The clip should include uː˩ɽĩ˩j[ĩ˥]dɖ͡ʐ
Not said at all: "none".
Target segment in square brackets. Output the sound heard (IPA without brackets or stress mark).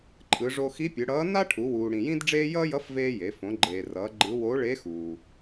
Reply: ĩ˥